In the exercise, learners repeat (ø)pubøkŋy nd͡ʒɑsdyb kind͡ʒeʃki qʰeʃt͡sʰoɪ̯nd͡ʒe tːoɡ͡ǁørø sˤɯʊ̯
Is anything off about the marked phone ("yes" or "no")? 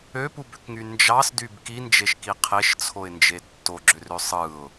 no